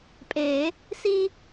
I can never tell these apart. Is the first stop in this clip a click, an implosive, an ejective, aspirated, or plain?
ejective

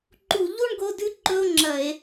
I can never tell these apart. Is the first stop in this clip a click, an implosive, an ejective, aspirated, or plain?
click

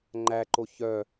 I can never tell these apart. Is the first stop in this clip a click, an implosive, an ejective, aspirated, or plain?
click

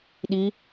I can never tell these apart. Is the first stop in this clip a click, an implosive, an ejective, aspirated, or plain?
implosive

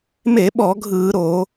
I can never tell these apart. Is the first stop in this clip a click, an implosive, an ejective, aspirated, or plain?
implosive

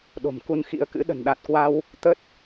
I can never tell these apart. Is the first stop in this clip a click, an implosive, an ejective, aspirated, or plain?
implosive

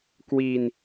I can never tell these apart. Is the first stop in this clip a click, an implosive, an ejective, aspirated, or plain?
plain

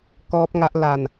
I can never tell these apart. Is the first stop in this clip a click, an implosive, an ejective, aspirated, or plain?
plain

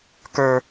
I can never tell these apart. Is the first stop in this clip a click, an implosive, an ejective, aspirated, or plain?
plain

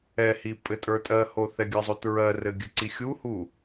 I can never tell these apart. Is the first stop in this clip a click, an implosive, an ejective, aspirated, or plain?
ejective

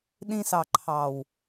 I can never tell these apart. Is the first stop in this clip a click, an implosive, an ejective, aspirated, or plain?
implosive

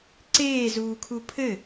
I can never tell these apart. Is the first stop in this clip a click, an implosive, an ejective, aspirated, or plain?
click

